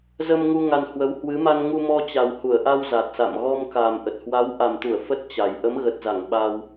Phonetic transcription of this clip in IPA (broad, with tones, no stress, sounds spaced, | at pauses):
z ə˧ m ŋ u˧ ŋ a˧ n h w ə˨˦ w h w ɨ˨˦ m a˧ n ŋ u˧ m ɔ˧ t͡ɕ a˨˩ w h u˧˩ ə̯ ʔ a˧ w z a˨˩ t̚ s a̰˧˨ m ɣ ɔ˧ m k a˨˩ m ʔ ə˨˩ t̚ h w a˨˦ w ʔ a˨˩ m t̪ u˧˩ ə̯ f ə˦˥ t̚ t͡ɕ a˨˩ j ʔ ə˨˦ m ɣ ə˨˩ t̚ z a˧˩ ŋ ɓ a˧ w